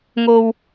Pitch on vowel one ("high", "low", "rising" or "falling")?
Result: low